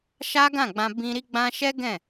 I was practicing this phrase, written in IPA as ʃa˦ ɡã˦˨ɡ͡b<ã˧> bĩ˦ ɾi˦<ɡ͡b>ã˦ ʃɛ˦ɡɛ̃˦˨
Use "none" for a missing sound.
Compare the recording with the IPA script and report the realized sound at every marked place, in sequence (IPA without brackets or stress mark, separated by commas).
ã˧, ɡ͡b